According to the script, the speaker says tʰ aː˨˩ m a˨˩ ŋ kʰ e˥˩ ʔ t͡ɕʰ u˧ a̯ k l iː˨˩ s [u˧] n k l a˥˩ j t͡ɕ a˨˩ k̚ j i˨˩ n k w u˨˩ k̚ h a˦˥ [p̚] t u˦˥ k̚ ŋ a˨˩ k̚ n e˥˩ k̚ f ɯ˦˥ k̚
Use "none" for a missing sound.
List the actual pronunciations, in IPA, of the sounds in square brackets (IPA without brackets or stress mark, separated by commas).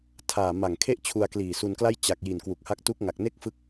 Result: u˧, k̚